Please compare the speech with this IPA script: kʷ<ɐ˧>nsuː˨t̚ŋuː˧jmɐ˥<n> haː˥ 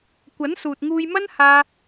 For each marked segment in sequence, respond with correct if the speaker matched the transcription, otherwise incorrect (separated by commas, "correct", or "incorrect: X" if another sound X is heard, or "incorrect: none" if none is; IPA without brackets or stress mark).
incorrect: ɐ˨˥, correct